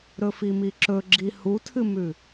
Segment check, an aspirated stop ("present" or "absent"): present